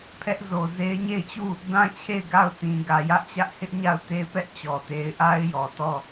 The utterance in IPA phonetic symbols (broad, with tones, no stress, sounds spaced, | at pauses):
pʰ ɛ˦ ʔ z o˨ z e˦ ɪ̯ ɲ e˦˨ ɪ̯ t͡ɕ u˦˨ | d ã˦ t͡ɕʰ e˦˨ ɪ̯ ɡ a˦˨ ʊ̯ t ĩ˨ ɡ ä˨ j ä˦ ʔ t͡ɕ ä˦ ʔ h ɪ˦ ʔ ɲ a˦˨ ʊ̯ t e˦ ɪ̯ p ɛ˦ ʔ t͡ɕ ɔ˨ t e˦ ɪ̯ ʔ a˦ ɪ̯ j ɔ˨ t ɔ˦˨